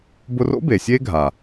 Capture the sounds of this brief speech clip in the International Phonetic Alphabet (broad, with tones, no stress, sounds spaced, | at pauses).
b ʊ˧ r o̰˦ b e˨ sʲ e˦ ɡʱ a˨